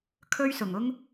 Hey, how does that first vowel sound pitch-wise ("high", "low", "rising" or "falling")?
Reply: high